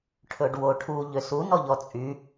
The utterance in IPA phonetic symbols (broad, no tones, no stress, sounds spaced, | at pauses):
ʈʰ ɵ ɖ w o ʈʰ u ʎ ø s u n ɔ ʎ ɔ t͡sʼ y